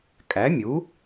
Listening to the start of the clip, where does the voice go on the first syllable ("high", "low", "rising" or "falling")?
rising